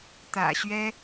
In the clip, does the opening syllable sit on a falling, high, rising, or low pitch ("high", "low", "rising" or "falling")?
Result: low